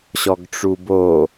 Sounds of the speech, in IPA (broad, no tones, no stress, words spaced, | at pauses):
ɕɔɡʈ͡ʂubo